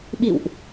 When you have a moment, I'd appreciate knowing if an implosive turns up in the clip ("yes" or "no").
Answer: yes